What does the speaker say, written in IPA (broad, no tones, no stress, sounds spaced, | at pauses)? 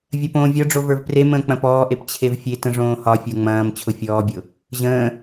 vʲ ɐ p õː vʲ ɒ ɖ͡ʐ o v ə˞ v p r e m ə̃ː k͡p ɐ̃ p ɔː ʔ e p t͡ɕʰ e v fʲ e t ə̃ ʐ õː h ɒ fʲ ə˞ ŋ͡m ɐ̃ː m t͡ɕʰ ʊ fʲ ɔː bʲ ʊ | ʑ ə̃ː